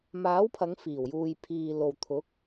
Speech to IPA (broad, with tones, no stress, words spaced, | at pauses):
maː˨˥wpʰɐ˨˧ŋ fiː˨˩w juː˨jpʰiː˨lo˨w t̪ʰʊ˨˥k̚